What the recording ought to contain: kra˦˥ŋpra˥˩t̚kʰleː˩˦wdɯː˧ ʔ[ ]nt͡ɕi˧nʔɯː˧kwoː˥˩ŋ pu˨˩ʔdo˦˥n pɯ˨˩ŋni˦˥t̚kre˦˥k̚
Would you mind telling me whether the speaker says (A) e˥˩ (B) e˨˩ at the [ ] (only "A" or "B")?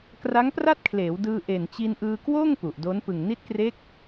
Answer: B